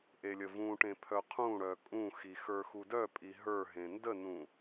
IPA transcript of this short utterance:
ʔ e lʲ ə v ũ ʈ ẽ pʰ œ qʰ ũ ɽ œ kʼ ũ x i x ə˞ x u d œ pʼ i ɦ ə˞ ɦ ẽ n d ə n ũ

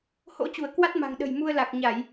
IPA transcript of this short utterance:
h o̰˧˥ t͡ɕ u˧˩ ə̯ k w a˦˥ t̚ m a̤˨˩ ŋ ɗ ə̤˨˩ j m u˧ ə̯ l a˨˩ k̚ ɲ a˧˩˨ j

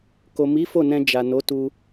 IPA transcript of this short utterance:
k o˨ m i˨˦ f o˦˨ n ɛ̃˧ d͡ʒ a˨ n o˨˦ t u˧

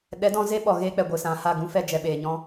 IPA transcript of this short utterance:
ɗ ɛ˨˦ d ɔ̃˧ z e˦ ɓ ɔ˨ ɣ eː˧ k͡p ɛ˨ ɡʷ ɨ˨ s ã˨ h a˦˨ ɡ ũ˧ f ɛ˧ d͡ʒ ɛ˨ ɓ eː˨ ɲ ɔ̃˧

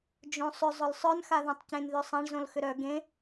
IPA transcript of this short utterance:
d͡ʒ õ sˤ ʏ zˤ ʊ l sˤ œ n x a ð ã tˤ c ẽ n ð ø sˤ ã ɳ z õ l x ʏ ɾ œ ɡ ẽ

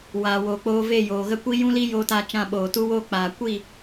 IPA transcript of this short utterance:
w aː˨ w oː˨ k͡p oː˧ v e˦˨ j oː˨ ɣ ə˦ kʷ i˦ j ũ˦ l iː˦ j oː˧ t aː˧ t͡ʃ ã˦˨ ɓ oː˨ t u˦ w oː˦ k͡p aː˨ kʷ i˦˨

